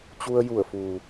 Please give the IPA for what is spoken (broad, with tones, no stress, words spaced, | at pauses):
t͡ɕu˧ə̯ju˧˩ə̯fuː˩